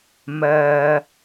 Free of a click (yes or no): yes